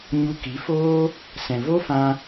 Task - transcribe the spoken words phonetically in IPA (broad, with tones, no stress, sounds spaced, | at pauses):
ɲ u˧ k i˨˦ f oː˦ | s ɛ̃˨ v o˦ f ã˧